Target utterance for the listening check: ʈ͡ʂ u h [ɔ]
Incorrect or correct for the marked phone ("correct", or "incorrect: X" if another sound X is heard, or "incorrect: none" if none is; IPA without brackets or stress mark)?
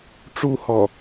correct